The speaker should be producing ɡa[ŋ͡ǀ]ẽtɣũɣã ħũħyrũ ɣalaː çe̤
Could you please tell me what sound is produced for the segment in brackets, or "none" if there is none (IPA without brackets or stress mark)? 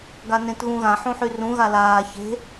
n